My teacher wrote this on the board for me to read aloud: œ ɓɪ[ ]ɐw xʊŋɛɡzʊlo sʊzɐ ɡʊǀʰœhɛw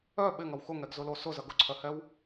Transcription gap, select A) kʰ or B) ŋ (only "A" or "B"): B